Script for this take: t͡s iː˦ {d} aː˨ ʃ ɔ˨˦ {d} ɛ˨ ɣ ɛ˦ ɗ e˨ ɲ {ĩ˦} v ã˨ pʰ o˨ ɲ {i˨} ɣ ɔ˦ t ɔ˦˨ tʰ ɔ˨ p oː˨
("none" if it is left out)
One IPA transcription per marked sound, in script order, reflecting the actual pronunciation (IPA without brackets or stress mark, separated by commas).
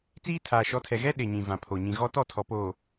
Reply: tʰ, tʰ, ĩ˨, ĩ˨